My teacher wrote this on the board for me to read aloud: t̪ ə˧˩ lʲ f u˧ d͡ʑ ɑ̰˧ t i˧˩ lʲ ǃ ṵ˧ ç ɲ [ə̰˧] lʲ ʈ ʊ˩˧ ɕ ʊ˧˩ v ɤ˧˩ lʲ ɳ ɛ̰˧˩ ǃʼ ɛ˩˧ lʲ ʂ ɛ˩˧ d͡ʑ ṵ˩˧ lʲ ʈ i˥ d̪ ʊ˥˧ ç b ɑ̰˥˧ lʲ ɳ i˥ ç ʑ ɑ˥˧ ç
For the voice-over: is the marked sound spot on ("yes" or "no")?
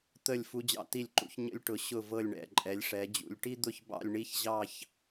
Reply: yes